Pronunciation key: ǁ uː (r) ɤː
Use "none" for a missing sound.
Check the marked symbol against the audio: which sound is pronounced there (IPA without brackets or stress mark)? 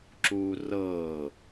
r